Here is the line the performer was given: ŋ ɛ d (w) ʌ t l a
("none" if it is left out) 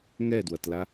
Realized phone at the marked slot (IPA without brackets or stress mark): w